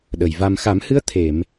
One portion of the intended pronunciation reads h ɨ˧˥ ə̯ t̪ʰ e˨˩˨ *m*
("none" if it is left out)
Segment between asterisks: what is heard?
m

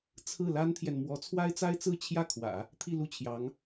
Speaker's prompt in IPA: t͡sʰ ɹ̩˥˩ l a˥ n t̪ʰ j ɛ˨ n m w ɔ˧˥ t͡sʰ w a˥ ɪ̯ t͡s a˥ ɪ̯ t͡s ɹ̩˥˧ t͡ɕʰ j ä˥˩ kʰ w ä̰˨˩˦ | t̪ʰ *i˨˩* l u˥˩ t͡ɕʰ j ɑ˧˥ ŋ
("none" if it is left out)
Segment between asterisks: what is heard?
i˥˧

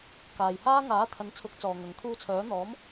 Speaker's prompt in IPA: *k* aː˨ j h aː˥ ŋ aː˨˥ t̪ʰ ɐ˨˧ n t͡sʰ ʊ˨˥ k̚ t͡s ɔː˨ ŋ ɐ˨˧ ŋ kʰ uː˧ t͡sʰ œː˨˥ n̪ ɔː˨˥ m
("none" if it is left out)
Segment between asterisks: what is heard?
k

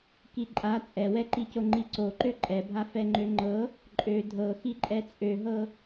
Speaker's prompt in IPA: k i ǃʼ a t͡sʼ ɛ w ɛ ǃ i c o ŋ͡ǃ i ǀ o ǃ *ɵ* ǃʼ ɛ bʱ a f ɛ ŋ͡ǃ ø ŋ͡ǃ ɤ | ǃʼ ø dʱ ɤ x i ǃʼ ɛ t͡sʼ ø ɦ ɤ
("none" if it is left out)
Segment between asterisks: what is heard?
ø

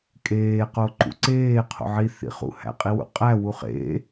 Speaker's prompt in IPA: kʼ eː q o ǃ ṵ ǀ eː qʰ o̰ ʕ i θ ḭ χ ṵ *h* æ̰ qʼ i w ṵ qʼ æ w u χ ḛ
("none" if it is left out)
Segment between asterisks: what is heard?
h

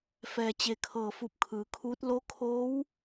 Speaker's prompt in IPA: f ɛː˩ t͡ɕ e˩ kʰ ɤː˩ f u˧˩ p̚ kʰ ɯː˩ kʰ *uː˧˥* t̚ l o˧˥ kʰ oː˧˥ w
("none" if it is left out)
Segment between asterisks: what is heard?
uː˧˥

